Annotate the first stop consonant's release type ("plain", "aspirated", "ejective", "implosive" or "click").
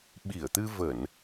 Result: implosive